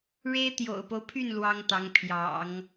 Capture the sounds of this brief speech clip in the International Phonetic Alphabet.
ɻe˥ɪ̯t̪jo̰˨˩ʊ̯po˦ʊ̯pʰy˥˩n lwɑ˥ŋt̪ɑ˧˥ŋ pʰjɑ̰˨˩˦ŋ

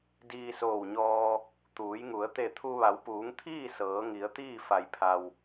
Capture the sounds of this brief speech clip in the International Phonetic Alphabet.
diː˧soː˧˩wɲɔː˧ | t̪uː˩˧jŋu˩˧ə̯ t̪e˧˩t̪ʰu˧ ʋa˩˧wpuː˩˧ŋt̪ʰiː˥˨ sɤː˩˧ŋi˩˧ə̯t̪iː˥˨ fa˩jpʰa˩w

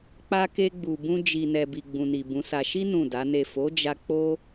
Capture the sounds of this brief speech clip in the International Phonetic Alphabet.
k͡pa˧ke˧ɡ͡bu˨ bũ˧d͡ʒi˨ nɛ˨bi˨ɡ͡bũ˨ni˨ bũ˨˦sa˧ ʃi˦ nũ˦˨da˨˦ne˦˨ fo˨˦d͡ʒa˧ k͡po˦

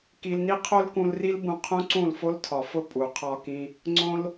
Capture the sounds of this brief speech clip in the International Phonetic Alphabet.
ki˧lni˦ qʰo˦lkũ˧lri˦lbũ˧ qʰũ˦ǀũ˦˨lfo˦ltʰɒ˨ fʊ˦ pʼu˨qʰɒ˦kĩ˦ | ŋ͡ǀõ˦l

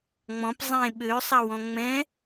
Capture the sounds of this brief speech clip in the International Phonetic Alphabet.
ŋ͡mɔ̃p zˤẽ ɓøsˤɐwɔ̃ ŋ͡mɛ̃

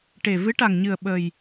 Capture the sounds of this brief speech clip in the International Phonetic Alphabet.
ʈe˨˩ vɨ˧˥ʈa˨˩ŋɲɨ˨˩ə̯ ɓə˨˩j

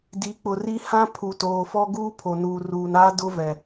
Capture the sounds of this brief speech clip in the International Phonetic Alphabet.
di˨˦k͡pʊ˨ri˦ hã˦pʰu˨ toː˨fɔ˦ɡuː˦ pʰo˨nuː˨ruː˨naː˦ dʊ˦vɛ˨

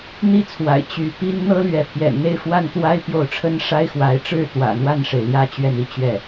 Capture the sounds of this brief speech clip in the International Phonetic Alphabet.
n̪i˥˩t͡sʰwa̰˨˩ɪ̯ t͡ɕy˧˥ pi˥n n̪ɤ˥lɥɛ˧˥ pʰjɛ̰˨˩nn̪e˥˧ɪ̯fwa˥˩nt̪wa˥ɪ̯ pjo˥˩ʊ̯ ʈ͡ʂʰə˥nʂa˥ɪ̯ xwa˧˥ɪ̯ʈ͡ʂɻ̩˥˩ t̪wä̰˨˩ n̪wa˥˩nʂe˩ɪ̯ ljä˥t͡ɕɥɛ˥˧ni˥˧ t͡ɕɥɛ˥˩

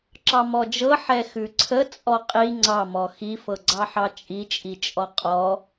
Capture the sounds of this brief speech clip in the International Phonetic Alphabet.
ǁɑmɔd͡ʒɤ ħɛxʉǀʰə t͡sʼɔqʼi ŋ͡ǀɑmɔ xifɤɡ͡ǀɑħɑ t͡ʃʼit͡ʃʼit͡ʃʼɔ qʼɔ

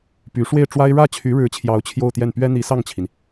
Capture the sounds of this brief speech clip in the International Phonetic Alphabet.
py˧˥ ʂwe˥˩ɪ̯ʈ͡ʂwa˥ɪ̯ ɻä˥˩t͡ɕʰy˧˥ɻɻ̩˧˥t͡ɕʰjɑ˧˥ʊ̯ t͡ɕʰjo˥˧ʊ̯t̪jɛ˥˩n pɥɛ˥n̪i˧˥sɑ˥˩ŋt͡ɕʰi˩n

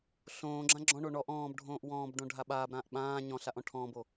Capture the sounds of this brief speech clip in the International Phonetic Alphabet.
ɬõː ɡ͡ǁãɡ͡ǁɔ̃ɳo ɳɔʔ ɔ̃ːbɖʱõːʔ wɔ̃ːbɖõ ɖʱaɓaːbɾãːʔ ɓãː ɲɔ̃ ɬaʔɔ̃ʈʰɔ̃ːbo

